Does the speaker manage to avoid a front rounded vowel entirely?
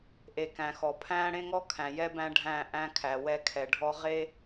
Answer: yes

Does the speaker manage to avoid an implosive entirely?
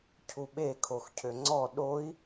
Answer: no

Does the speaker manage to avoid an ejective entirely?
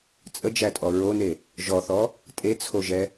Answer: no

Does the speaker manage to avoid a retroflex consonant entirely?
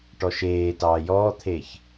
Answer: no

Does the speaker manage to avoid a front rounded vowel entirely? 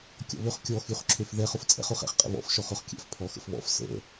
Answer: no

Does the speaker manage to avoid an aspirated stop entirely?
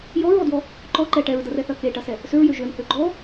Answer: yes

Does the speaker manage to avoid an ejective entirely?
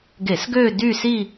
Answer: yes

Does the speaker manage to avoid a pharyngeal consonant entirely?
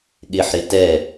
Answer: no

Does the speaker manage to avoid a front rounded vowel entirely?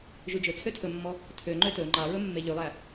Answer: no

